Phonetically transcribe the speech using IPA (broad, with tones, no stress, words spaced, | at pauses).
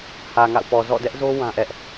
hä˨ŋa̰˦˨ʊ̯pɔ˨ zɔ̰˦˨dɛ˦ʔzo˦ wã˦ʔɛ˦ʔ